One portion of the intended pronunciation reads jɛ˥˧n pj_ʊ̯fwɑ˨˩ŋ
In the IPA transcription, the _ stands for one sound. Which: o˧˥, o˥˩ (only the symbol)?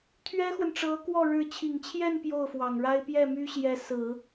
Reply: o˥˩